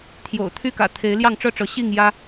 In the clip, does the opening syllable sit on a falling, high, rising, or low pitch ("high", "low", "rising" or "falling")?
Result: low